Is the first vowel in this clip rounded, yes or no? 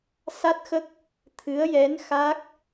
no